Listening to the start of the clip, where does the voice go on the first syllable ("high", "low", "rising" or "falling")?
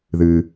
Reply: low